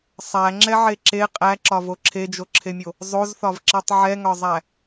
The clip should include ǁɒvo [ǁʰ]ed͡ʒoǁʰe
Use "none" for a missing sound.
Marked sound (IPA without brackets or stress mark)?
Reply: ǁʰ